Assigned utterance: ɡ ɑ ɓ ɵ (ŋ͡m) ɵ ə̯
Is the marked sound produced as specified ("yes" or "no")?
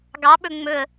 yes